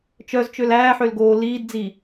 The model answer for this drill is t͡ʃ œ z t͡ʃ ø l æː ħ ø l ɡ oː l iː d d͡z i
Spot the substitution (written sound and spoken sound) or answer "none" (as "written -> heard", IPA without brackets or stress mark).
none